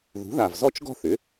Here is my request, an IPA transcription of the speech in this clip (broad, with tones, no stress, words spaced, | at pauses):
ðṳ˩˥ða˨˩vzɔ˥˧t͡ʃɡɔ̤˥˧ θʏ˩˥